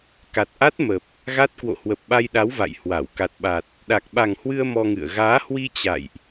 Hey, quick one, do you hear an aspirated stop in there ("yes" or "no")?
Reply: no